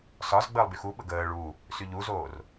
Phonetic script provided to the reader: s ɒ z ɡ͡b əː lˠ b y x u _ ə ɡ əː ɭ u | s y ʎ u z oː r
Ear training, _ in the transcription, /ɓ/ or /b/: ɓ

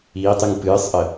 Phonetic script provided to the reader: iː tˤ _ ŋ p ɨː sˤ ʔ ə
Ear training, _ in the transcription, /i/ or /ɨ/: ɨ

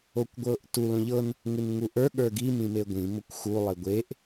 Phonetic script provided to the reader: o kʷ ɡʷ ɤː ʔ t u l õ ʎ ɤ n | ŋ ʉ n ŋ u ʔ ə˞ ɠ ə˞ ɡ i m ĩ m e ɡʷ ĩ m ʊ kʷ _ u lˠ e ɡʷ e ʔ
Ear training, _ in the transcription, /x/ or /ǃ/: x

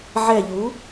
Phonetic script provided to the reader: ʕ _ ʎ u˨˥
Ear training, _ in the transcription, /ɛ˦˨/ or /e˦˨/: ɛ˦˨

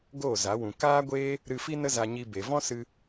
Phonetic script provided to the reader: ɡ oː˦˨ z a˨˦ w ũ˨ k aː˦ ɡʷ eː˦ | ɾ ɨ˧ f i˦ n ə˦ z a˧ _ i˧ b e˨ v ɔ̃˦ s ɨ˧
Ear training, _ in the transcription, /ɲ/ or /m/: ɲ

